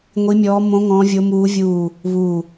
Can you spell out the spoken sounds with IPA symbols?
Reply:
ŋʷ i˦˥ mʲ ɔː˦˥ m õ˦˥ ŋ ɔ̃˦˥ vʲ o˦˥ m uː˦˥ vʲ uː˦˨ | β u˦˨

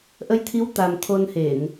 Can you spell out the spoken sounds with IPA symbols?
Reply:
ʔ ə˨˦ j t̪ʰ i˨˦ w t̪ a˨˩ m t̪ʰ o˧ n h e˧˩˨ n

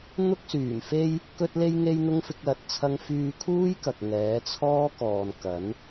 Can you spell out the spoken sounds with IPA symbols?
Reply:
n̪ ʊ˧ k̚ s yː˨˩ m f e˧ j | k ɵ˧ t̚ l e˧ j ŋ e˧ j n̪ ʊ˧ ŋ f ɪ˧ k̚ l ɐ˨ t̚ t͡sʰ ɐ˧ ŋ f yː˧ kʰ uː˥ j k ɐ˨ k̚ ŋ ɛː˨˥ t͡sʰ ɔː˥ k ɔː˨ n k ɐ˨˥ n

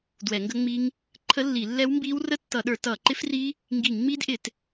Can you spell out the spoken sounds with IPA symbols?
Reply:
d w ɛ˧˩˧ ŋ ɡ ə˦˥ ŋ͡m i˦˥ ŋ | ǃʰ ə˦˥ lː i˧˩˧ lː ɛ˦˥ w m b iː˦˥ w r ə˦˥ tː ʌ˧˩˧ ɗ ə˞˧˩˧ t ʌː˧˩˧ ǃ ɪ˦˥ f r i˦˥ | ŋ ɡ iː˧˩˧ ŋ ŋ͡m iː˦˥ d ʔ ɪ˧˩˧ t

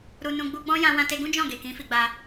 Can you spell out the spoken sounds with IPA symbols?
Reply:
ɾ u˨ n ũ˨ ɡ͡b u˧ ɡ͡b ɔ̃˦ j ã˧ w ã˧ t e˧ ɡ ũ˦ d͡ʒ ɔ̃˦˨ ɡ e˨ k ĩ˨˦ f i˧ ɡ͡b a˧

